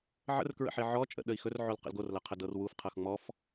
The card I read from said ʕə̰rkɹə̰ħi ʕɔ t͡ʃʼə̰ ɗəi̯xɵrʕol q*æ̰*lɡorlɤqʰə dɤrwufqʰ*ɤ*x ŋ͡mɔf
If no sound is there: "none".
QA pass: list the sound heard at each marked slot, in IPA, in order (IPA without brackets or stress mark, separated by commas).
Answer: ə̰, ɤ